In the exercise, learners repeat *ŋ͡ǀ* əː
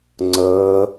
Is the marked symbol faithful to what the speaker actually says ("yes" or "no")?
yes